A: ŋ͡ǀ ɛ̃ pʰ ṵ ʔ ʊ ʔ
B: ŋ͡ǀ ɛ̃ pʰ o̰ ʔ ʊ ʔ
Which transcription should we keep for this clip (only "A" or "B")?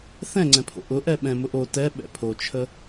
B